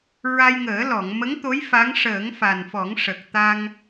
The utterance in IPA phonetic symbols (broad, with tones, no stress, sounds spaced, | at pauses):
ɹ a˧ j ŋ əː˨˩˦ l ɔ˨˩˨ ŋ m ə˧˥ ŋ t̪ o˧˥ j f a˧˥ ŋ ʂ əː˨˩˦ ŋ f a˨˩ n f ɔ˨˩˦ ŋ ʂ ə˨˩ k̚ t̪ a˧ ŋ